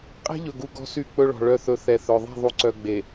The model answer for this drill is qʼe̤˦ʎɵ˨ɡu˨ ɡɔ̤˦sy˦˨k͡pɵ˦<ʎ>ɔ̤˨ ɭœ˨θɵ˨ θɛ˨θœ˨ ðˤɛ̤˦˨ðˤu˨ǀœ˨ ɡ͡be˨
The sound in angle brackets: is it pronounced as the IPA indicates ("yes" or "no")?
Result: no